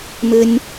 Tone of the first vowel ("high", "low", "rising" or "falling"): high